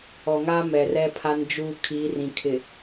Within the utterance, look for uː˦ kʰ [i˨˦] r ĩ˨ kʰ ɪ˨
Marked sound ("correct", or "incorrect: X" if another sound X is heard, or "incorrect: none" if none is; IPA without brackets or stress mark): correct